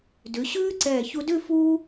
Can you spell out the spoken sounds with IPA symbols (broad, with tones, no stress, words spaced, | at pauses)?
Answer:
dʉ˩˧ɕʉː˥ ǀɛː˧˩çu˧dʉ˥˧ fuː˥